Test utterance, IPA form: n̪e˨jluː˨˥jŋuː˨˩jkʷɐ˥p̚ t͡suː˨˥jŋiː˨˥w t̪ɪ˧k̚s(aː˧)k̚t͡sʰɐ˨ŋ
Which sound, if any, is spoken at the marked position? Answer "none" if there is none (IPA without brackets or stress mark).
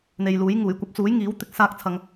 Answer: aː˧